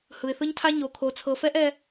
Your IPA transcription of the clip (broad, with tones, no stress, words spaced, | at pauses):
hɯ˨ɪ̯θɯ˦ɲtʰa˦ ɲo˨kʰo˨ t͡sʰɤ˨fɛ˦ʔ ɛ˦